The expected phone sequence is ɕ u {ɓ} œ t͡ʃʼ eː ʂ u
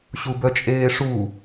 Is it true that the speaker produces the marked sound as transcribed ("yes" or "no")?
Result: no